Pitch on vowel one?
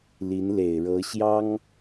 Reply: rising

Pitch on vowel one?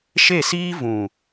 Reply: falling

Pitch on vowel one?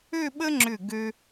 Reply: falling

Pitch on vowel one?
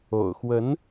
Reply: low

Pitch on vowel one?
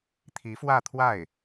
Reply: rising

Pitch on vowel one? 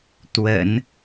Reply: low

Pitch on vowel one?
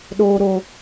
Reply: high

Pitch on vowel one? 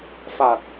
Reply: low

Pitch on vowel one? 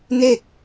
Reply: falling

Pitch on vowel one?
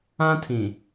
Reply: high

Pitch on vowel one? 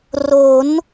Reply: rising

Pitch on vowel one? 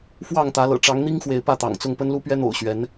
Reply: falling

